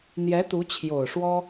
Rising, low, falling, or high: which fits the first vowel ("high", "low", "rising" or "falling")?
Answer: rising